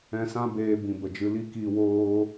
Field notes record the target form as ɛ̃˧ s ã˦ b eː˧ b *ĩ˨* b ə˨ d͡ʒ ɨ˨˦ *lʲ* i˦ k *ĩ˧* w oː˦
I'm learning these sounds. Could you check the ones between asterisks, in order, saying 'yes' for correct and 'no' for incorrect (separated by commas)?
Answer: yes, no, no